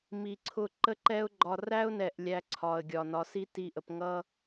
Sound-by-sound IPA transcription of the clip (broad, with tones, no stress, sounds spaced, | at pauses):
m i˨ ǀʰ ʊ˧ ǃ ə˦ ǃ ɛ˦ ʊ̯ ɡ͡ǃ ɒ˧ r æ˦ ʊ̯ n ɛ˨ ʔ lʲ æ˧ ǀʰ ɒ˨ ə̯ ɡʲ ɒ˨ n ɒ˨ s i˦ t i˧ ʔ ə˨ p ŋ ʌ˧